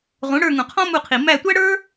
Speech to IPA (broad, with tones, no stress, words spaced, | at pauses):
ʁũ˩˥ɽə˞˦˨ ŋũ˨qʰɔ̃˥mu˦˨qʰi˨ mæ˦˨tʷæ˥ɽə˞˥